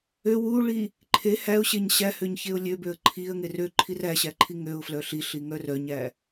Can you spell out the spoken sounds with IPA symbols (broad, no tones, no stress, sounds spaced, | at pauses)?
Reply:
ø w u ɭ i | ǃʰ e h æ ʊ̯ ɕ e ɲ ɕ æ h ø ɲ ç e ʊ̯ lʲ ø b ø ə̯ ǃʰ i ə̯ ŋ e r ø ǃʰ i r æ ɕ æ ǃʰ i ŋ ø ʊ̯ f l œ ɬ i ɬ i ŋ œ r œ ɲ æ